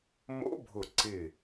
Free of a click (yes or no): no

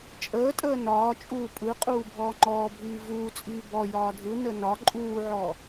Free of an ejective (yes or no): no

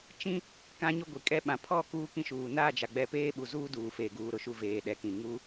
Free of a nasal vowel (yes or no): no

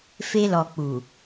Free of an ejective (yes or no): yes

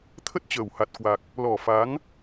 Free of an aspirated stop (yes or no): no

